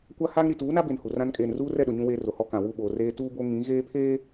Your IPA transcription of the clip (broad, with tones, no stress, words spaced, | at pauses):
kʷa˦ha˦ŋ ɾi˨tuː˨˦na˦be˨n hu˨rã˦n kʼeː˨nruː˦rɛ˦˨ɗʊ˨ ɲũ˦weː˦ro˨hɔ˦ kã˨wu˦˨ɓoː˨ reː˦ tuː˦bo˦ ŋĩ˨˦ ɣeː˦pʰeː˦